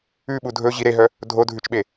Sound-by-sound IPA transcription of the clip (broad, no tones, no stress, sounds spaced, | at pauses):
ʉ ɓ u dʱ ɵ ʑ i ɾ e ɦ œ | dʱ o dʱ ʉ t͡ʃ ɓ e